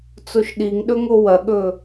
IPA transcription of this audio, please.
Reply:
t͡s o ʃ ɗ i ŋ ɗ ɵ ŋ o w ɐ ɠ ɵ

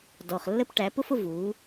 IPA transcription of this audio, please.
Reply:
d ɔ˨ χ lː ə˦ p ʈ æ˨˦ p ʊ˦ f ʊ˧ v uː˨˦

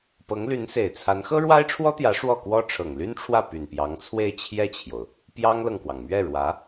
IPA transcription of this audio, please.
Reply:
p ɤ˧˥ ŋ l y˧˥ n s e˨˩ ɪ̯ t͡sʰ a˧˥ n x ɤ˥ ɻ w a˥ ɪ̯ ʈ͡ʂʰ w ɔ˥ t̪ j ä˧˥ ʂ w ɔ˥˩ k w ɔ˥ ʈ͡ʂʰ ɤ˨˩ ŋ l y˥ n ʈ͡ʂʰ w ä˥˩ p y˨˩ n p j ɑ˧˥ ŋ t͡sʰ w e˥˧ ɪ̯ t͡ɕʰ j ɛ˥˩ t͡ɕʰ j o˩ ʊ̯ | p j ɑ˥ ŋ l ɤ˨ ŋ k w ɑ˩ ŋ m ɥ ɛ˥˩ ɻ w ä˧˥

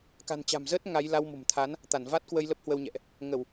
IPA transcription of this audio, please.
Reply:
k a̤˨˩ n t͡ɕ a̤˨˩ m z əː˦˥ t̚ ŋ a˨˦ j l a˧ w m o̤˨˩ m t̪ʰ a˨˦ n | t̪ a˧˩ n v a˦˥ t̚ k w ə˧ j l ə˦˥ p̚ h w ə˧ w ɲ ɛ̰˧˨ ʔ | ŋ ə˧˩˨ w

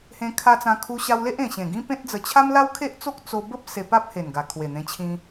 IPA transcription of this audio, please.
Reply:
h ẽ˧ kʰ a˧ t͡s ã˧ kʰ u˧ ɕ a˧ w l e˦ ʔ ẽ˨˩ ɕ ẽ˨˩ ɡ ĩ˦ p ẽ˦ t̚ d͡z ə˧ t͡ɕʰ a˦ m l a˦ w kʰ e˦ ʔ t͡s o˦ k̚ t͡s o˧ b ə˦ p̚ s e˧ p a˦ p̚ h e˨˩ n ɡ a˨˩ kʰ w e˨˩ n̪ ẽ˧ t͡ɕʰ ĩ˧

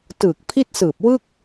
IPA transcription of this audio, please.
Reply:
t ɯː˨˩ k̚ pʰ i˥˩ t̚ s ɯː˨˩ p̚ w ɯ˥˩ k̚

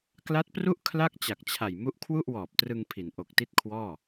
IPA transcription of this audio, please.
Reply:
k l a˦˥ t̚ p r u˥˩ ʔ kʰ l a˥˩ k̚ t͡ɕ a˨˩ k̚ t͡ɕʰ a˨˩ j m u˦˥ ʔ kʰ w u˥˩ ʔ w ɔː˨˩ p̚ t r ɯ˧ ŋ pʰ i˩˦ n ʔ o˨˩ k̚ t i˥˩ t̚ kʰ w ɔː˥˩

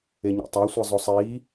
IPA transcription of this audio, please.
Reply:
e ɲ ḛ tˤ æ sʷ e zˤ o sˤ iː

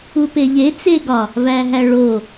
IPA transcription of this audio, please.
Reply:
u p e ʎ e t͡s e ɡ ɒ | v æ ɦ æ ɭ o

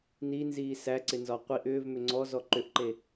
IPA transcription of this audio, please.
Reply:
n i n z iː s æ ǀ ɪ n z ɒ qʷ i ʔ ʏː v m ʏ ŋ͡ǀ ɔ z ɔ ǃ ʏ ʔ ǃ e

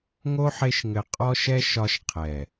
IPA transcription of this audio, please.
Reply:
ŋ o˦ ħ e˦ ʃ ŋ ɘ˧ qʼ ɔ˧ ʃ ɛ˦ ʃ ɒ˧ ʃ qʰ ɛ˨

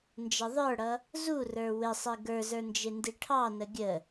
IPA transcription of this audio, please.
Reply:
n d͡ʒ ə ðˤ ə˞ ɽ ʌ | z u r ə˞ w ɪ sˤ i ɡ ə˞ z ə˞ n d͡ʒ ɪ n d i ʈʰ ɑ n ə ɡʲ ə

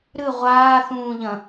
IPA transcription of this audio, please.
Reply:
ɾ ɨ ʁʷ aː θ ũː ʎ ɐ̃

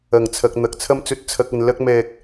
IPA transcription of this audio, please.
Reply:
ɐ˨˩ ŋ t͡sʰ ɐ˨ k̚ n̪ ɐ˨ k̚ t͡sʰ ɐ˧ m t͡s ɵ˨ t̚ t͡sʰ ɐ˨ k̚ ɐ˨ n l ɐ˧ k̚ m ɛː˨ k̚

